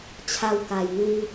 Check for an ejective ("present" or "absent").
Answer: absent